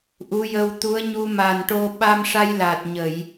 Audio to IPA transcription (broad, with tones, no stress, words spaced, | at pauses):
ʔu˧˥jə˧wt̪u˧˥ə̯ ɲu˧ ma˨˩nʈo˧ ɓa˧mʂa˧jla˨˩t̚ ɲə˨˩˨j